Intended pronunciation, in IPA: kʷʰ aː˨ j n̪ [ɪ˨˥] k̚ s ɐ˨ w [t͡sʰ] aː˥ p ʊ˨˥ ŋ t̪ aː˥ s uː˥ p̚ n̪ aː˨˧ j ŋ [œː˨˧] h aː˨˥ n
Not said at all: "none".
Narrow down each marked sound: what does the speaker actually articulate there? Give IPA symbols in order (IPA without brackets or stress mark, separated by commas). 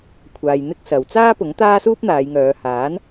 ɪ˥, t͡s, œː˨˧